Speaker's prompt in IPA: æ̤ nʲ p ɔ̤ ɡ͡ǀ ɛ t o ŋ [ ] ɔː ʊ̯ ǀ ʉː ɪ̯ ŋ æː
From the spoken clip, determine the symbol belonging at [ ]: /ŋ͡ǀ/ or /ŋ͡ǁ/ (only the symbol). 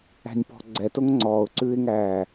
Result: ŋ͡ǀ